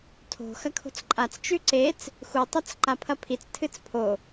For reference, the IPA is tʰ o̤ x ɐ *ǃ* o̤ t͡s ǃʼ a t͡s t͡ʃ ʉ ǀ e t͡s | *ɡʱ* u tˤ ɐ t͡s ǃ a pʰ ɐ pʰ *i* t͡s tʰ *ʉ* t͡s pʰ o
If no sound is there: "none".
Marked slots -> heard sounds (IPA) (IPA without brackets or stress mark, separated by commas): kʰ, x, i, ɨ